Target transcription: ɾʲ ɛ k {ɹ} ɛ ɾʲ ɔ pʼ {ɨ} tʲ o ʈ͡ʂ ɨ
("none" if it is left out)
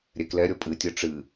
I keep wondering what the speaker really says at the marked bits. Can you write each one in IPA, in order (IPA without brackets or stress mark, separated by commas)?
l, ɨ